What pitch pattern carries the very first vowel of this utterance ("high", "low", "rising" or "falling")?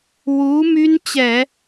rising